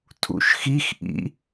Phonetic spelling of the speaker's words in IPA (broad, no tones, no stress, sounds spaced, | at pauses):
tʰ ṵ ʃ x i x ʔ ḭ